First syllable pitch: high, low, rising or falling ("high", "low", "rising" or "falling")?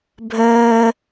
high